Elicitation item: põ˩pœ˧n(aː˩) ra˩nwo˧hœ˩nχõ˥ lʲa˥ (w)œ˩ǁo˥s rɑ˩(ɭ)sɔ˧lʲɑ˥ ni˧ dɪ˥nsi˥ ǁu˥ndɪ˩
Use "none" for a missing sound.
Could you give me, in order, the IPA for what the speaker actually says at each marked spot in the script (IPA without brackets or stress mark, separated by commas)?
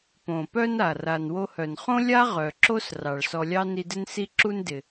a˩, ʁ, ɭ